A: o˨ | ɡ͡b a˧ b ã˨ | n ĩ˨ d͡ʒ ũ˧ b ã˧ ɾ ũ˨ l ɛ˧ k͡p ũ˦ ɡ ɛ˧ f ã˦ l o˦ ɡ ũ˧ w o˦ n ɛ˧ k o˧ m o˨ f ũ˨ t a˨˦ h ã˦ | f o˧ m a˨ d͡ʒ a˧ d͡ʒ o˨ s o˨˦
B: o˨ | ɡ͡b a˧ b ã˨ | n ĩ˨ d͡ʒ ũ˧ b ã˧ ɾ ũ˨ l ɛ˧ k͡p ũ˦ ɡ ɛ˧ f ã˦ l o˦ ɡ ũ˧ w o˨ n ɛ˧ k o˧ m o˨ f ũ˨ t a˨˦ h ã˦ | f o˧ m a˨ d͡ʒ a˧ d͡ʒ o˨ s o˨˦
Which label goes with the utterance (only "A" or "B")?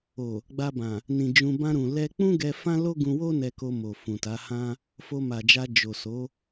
A